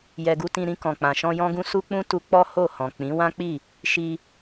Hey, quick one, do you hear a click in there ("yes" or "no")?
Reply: no